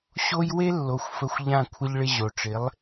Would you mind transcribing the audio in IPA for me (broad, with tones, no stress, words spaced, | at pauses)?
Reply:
ɕo˥j we˥ lːo˩˥xʷfə˧xʷʎã˥˩ kʷʰə˧ʎɭɪ˧ ʑo˩ʈ͡ʂɪ˩˥lˠ